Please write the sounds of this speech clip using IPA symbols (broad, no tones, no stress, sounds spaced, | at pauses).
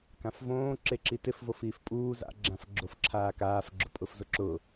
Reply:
k ã f v õː ǁ e ǁ i t ɪ f v o f iː f pʼ uː z a̰ ɡ͡ǁ ã f ɡ͡ǁ o f ǁʰ aː k aː f ɡ͡ǁ ʊ pʼ ʊ f z ʊ ǁ ʊ